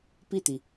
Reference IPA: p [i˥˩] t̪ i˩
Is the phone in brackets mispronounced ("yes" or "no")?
no